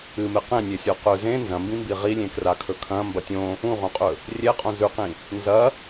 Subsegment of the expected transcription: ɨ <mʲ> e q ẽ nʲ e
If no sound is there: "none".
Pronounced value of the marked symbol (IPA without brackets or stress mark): m